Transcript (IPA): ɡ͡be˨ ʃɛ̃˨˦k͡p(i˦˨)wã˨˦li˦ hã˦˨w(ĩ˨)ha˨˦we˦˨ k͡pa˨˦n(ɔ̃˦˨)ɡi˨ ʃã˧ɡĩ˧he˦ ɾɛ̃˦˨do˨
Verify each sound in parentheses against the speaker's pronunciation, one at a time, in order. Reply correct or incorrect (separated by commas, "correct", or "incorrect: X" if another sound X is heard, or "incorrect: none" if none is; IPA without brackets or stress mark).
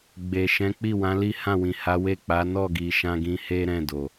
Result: correct, correct, incorrect: ɔ˦˨